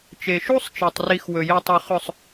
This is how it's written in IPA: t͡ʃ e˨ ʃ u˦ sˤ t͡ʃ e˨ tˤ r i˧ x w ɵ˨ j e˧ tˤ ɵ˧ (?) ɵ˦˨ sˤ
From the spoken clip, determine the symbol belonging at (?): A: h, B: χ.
B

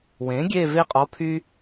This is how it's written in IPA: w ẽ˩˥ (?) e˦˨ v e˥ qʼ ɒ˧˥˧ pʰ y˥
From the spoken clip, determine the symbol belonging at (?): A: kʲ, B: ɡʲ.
B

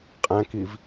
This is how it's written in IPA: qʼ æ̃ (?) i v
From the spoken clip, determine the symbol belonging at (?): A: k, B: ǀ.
A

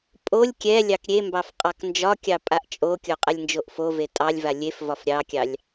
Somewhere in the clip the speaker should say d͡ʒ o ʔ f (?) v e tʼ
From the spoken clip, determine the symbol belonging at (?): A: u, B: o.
B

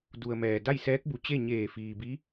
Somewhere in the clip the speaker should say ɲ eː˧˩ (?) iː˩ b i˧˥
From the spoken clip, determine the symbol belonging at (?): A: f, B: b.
A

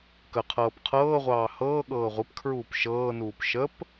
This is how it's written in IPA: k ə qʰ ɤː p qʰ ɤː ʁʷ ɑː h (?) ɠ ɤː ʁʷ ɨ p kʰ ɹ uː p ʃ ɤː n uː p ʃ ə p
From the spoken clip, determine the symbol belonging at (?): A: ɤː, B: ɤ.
A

